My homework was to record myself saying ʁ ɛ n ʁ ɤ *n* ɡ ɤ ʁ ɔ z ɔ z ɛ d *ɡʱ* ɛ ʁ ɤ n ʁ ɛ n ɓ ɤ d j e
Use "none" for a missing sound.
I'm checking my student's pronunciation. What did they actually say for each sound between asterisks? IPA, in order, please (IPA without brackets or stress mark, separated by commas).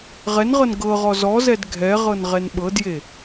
n, ɡʱ